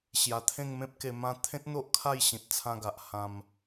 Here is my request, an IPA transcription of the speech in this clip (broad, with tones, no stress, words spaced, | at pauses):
ɕja˧ t̪ʰẽ˥˧ŋmẽ˦p̚ke˧ mã˥˧ t̪ʰẽ˦t̚n̪o˦ʔ kʰa˥˧jɕĩ˨t̚t͡sʰã˧ɡa˨ʔ hã˧m